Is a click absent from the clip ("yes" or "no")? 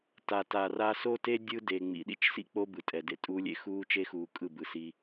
yes